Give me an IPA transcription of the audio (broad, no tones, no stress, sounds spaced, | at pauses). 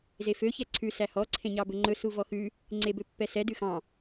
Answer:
z e f ø ç ɛ ǀʰ ʉ s æ h ɔ ǀʰ ẽ ɲ ɑ b ɵ ŋ͡ǃ ɵ s u v ɔ x ʉ | ŋ͡ǀ e b ø pː ɛ s ɛ d ʉ x ɑ̃